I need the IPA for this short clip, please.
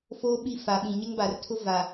foː˦ ɓi˦˨fa˨ɓĩ˨ ɲɪ˦ŋba˨rtʰʊ˦ va˨

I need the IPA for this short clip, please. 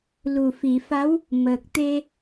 lu˨˩fi˨˩˨fa˧˥w | məː˨˩k̚t̪e˧

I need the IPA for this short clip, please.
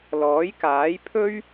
lɔː˨˥jkaː˨˥j pʰɵ˥ɥ

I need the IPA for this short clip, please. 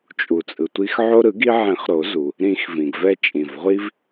t͡ʃʼu˩t͡sʼɯ˩tʷi˧x ʕo˧ɾɯ˨˩˦ɡi˧ʕẽ˨˩˦χ ɾo˨˩˦zu˩ | ɾĩ˨˩˦x vĩ˩ɡvɛ˧ t͡ʃʼĩ˩vʁʷi˧v

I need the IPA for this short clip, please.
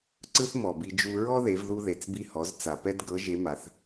ǀɯ˥θmɔ˩bi˧ d͡ʒu˧ ɹɔ˥ðe˩˧vðu˧ ðe˩t͡sbi˧hɔ˩˧z t͡sa˩pɛ˥dɡɤ˧˥ ʒe˧˥ma˩˧θ

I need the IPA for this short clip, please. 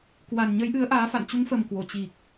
kwa˨˩nɲə˨˦jʔɨ˨˦ə̯ ʔaː˨˦fa̰˧˨n t͡ɕu˨˦ŋfə˨˩m kwo˧˩ t͡ɕi˨˩k̚

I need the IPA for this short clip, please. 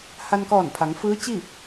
ha˧nkɔː˧˩npʰa˩˧ŋ fɯː˧˥t͡ɕi˥˨

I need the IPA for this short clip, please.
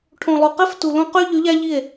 ʈʰõ˨lˠo˨qe˦ftu˨ lõ˦ qy˦ ʎy˨˦ʎæ˦ʎi˦˨e̯

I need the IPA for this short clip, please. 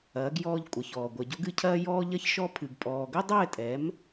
ɐː˩˥ɡjɔː˧ʎkʷʼɐ˩çɔː˩ ɡʷɐ˩ɟo˧ɡɨ˧cʰɐː˧ jɔː˧ʎɐ˧çʃɔ˧ pʰɨ˩ɡpʼɔː˩ɡɘ˥ dˤɘː˥˩tʼɛ˩˥m

